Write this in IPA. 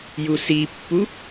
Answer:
jusipːu

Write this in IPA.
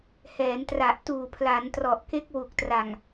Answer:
hɛː˩˦ntra˨˩ʔtuː˨˩ pʰla˩˦ntrɔ˨˩ʔke˦˥k̚ wu˨˩k̚tra˨˩ŋ

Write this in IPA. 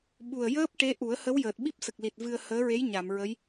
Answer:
ɓu˨˩ə̯jəː˦˥p̚ ʈe˧˥ ʔu˨˩˦ə̯hə˧˥w jəː˨˩t̚ɓi˦˥p̚sə˨˩k̚li˨˩t̚ vɨ˧ə̯ həː˧˥ɹe˧˥j ɲa˨˩˨mɹə˧˥j

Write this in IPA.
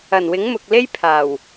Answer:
ɐ˨˩n wɪ˨˥ŋmʊ˨k̚le˥jpʰaː˨˩w

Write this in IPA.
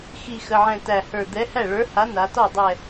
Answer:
xi˧˩ xə˩˧˩ʕɛ̃˧˩ tæ˧˩hə˞˧˩ d̪ɛ˨˥ hæ˥˩ɭə˞˨˥ha˨˥ na˩˧tɔ˥˩dˤɛ˧˩

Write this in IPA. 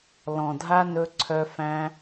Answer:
lɔ̃˨dʱa˦ nɵ˧ǀʰœ˧ fæ̃˧

